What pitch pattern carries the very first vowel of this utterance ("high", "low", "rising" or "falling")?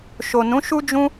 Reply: low